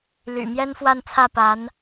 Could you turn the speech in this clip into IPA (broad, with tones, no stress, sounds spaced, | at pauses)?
l y̰˨˩ m j ɛ˥ n f w a˥˧ n t͡sʰ ä˥˩ p a˧˥ n